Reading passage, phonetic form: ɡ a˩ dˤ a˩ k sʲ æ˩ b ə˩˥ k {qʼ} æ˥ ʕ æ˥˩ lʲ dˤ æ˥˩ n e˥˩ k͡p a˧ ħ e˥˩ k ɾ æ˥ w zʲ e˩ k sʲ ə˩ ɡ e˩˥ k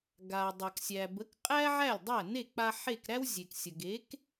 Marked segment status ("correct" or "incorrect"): correct